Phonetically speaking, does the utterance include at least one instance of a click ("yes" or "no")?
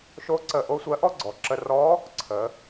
yes